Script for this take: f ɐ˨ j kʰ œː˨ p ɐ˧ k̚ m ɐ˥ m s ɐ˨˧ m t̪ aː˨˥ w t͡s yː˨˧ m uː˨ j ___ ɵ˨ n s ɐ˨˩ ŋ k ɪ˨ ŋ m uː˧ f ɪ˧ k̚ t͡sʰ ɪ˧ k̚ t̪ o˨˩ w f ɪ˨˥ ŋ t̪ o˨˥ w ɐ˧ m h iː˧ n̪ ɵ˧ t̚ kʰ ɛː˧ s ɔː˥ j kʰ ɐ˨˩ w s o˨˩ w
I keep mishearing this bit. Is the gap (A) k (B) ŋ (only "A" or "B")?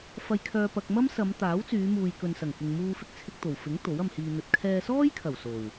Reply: A